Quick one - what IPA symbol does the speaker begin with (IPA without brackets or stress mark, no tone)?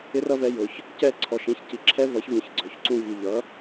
ɪ